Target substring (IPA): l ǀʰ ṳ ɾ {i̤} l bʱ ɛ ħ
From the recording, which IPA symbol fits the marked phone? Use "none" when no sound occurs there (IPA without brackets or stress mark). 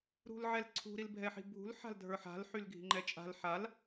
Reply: i